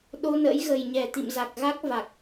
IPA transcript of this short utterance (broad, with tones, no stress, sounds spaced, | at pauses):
ɗ o˧ n ə̰˧˥ j ɣ ə˨˩ j ɲ ɛ˨˩ t̪ ḭ˧˨ m z a˨˩ k̚ ɣ a˦˥ k̚ v a˨˩ k̚